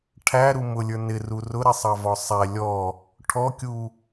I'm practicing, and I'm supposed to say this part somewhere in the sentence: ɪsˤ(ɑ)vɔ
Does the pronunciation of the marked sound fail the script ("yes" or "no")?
no